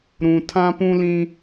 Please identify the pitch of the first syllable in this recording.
low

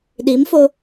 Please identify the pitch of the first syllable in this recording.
rising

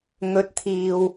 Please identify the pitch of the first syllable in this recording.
rising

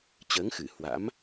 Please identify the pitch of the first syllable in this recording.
rising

